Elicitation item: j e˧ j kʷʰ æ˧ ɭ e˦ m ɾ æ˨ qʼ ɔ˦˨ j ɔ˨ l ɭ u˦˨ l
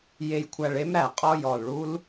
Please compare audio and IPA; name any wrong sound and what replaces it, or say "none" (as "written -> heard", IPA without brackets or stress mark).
u˦˨ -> u˦